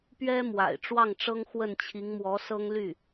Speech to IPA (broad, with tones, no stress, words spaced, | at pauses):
pɥɛ˥ mwa̰˨˩ɪ̯ʈ͡ʂwɑ˥˩ŋʈ͡ʂɤ˥ŋ xwə˥˩nt͡ɕʰi˧˥ŋmwɔ˧˥ sɤ˥ŋly˥˩